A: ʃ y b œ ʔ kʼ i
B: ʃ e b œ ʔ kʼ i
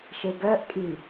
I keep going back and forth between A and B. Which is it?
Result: B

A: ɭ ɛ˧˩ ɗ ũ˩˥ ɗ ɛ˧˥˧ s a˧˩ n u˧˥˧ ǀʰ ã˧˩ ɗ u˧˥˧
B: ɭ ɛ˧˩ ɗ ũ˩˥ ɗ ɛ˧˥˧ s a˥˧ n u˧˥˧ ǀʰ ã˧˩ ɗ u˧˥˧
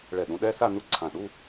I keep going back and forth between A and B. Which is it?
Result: B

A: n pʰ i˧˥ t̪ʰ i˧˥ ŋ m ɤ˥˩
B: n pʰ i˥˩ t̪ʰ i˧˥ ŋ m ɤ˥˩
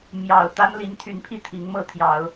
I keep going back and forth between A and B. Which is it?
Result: B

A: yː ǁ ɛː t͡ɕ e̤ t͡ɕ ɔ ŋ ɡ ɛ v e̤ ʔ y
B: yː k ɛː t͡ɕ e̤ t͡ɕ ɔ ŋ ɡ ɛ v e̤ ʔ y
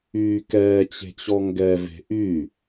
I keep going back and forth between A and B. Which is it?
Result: B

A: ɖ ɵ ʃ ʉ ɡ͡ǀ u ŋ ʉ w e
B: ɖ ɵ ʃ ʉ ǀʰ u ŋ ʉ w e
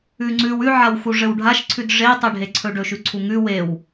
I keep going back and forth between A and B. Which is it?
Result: B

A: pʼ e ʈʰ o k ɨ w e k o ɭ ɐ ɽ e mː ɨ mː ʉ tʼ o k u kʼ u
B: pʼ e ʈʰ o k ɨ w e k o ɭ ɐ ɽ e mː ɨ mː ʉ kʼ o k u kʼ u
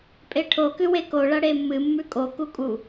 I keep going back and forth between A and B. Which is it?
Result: B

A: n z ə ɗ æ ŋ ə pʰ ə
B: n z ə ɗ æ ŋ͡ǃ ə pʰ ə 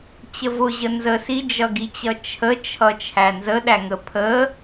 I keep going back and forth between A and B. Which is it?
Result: A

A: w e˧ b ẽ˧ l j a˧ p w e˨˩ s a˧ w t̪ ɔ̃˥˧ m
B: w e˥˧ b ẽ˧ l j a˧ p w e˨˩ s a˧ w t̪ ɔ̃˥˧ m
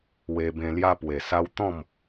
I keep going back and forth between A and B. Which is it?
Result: A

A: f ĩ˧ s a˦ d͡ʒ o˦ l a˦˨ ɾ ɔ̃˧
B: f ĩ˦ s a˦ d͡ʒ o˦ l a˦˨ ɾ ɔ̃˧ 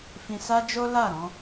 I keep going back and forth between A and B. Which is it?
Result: A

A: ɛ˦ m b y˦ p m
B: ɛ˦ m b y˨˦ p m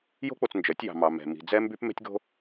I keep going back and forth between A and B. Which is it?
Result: A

